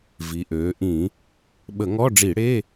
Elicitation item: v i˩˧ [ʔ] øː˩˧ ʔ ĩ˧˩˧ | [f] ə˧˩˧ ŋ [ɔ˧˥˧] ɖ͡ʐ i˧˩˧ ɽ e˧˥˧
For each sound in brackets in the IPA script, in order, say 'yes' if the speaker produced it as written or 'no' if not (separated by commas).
yes, no, yes